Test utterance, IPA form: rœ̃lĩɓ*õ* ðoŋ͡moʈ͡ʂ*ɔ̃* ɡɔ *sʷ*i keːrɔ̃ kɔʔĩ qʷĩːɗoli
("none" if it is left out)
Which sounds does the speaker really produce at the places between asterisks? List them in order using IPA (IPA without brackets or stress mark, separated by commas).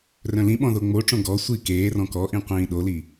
ɔ̃, õ, sʷ